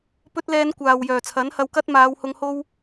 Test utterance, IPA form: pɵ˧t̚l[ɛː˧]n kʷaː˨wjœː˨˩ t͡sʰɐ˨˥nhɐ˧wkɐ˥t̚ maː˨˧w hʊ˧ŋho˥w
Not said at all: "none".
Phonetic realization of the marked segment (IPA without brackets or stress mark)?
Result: ɛː˨˧